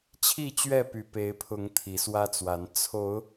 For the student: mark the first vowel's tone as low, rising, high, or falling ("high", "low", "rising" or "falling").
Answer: falling